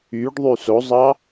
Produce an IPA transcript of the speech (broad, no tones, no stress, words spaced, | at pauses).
yɖðˤy sozˤɑ